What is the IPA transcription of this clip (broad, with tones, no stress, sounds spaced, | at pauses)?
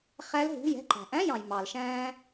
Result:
χ æ˦˥ l ɦ ṳ˧˥˧ j ɛ̤˧ ǃ æ̤˩ ʔ æ̃˧˥˧ j ɑ̃˩ j m ɑ˩ l ʃ æ̃ː˧